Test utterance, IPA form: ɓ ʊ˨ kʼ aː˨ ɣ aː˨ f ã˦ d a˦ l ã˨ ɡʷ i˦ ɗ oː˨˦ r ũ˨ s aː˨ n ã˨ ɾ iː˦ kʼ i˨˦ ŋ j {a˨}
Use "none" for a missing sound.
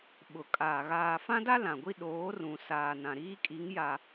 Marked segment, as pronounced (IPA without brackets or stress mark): a˨